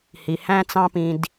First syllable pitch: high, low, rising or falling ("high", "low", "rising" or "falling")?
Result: low